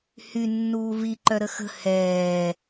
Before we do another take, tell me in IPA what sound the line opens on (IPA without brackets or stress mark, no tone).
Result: h